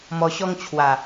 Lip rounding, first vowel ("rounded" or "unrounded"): rounded